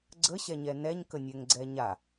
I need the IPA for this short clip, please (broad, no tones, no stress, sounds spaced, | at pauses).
ɡ͡ǀ ə ɕ ɛ ɲ ɛ n ɛ ɲ k ə nʲ ɛ ŋ ɡ͡ǀ ɛ ɲ a